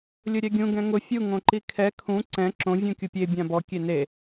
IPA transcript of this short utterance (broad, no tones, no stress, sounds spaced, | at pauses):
lʲ ʊ ɾʲ ɛ ɡʲ ũ ɡ ɛ̃ ŋ ʊ fʲ u ŋ õ ǃ i kʰ ɛ kʰ ũ ǀ ɛ̃ ǁ õ vʲ ũ kʲ u pʲ e bʲ ã b ɔ kʲ e n e